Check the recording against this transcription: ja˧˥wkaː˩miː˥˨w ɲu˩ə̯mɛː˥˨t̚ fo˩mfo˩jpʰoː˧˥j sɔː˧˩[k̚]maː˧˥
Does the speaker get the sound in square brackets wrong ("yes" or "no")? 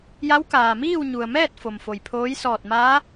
yes